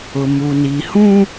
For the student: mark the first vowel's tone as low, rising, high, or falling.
low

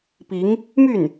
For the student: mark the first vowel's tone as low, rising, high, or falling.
rising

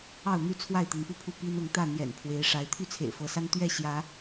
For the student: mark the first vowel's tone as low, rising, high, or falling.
falling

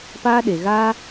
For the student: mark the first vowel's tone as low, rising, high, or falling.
high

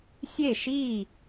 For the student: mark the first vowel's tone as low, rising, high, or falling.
falling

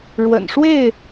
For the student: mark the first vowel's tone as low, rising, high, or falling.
low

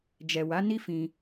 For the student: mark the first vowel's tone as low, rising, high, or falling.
low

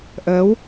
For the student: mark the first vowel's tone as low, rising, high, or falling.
rising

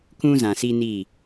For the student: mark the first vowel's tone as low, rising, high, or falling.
high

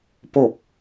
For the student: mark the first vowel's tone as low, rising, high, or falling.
falling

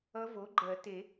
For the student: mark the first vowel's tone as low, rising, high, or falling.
rising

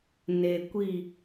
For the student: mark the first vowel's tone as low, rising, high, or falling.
low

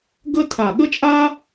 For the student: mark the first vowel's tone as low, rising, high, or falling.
high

